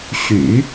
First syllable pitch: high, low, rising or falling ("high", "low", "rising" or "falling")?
low